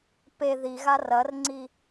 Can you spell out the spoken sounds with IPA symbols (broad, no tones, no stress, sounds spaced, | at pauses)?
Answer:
p e ð i ɣ a r ɐ r ŋ͡ǀ i